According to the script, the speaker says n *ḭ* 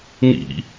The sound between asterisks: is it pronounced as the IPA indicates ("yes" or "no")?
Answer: yes